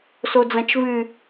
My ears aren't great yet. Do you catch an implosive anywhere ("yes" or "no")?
no